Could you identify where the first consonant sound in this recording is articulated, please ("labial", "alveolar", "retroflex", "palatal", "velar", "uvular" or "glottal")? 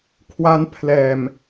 velar